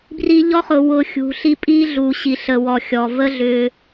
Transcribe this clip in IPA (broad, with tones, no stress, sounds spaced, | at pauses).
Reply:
b r i˧ ʎ ɔ˦ χ ʊ˨ w ʊ˧ xʲ ṳ˨ ɬ i˧ pʼ i˦ ɮ u˨ ɕ i˨ ɬ ə˨ w ɔ˨ xʲ ɔ˨ v ə˦ ɮ ʏ˧